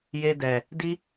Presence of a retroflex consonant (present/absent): absent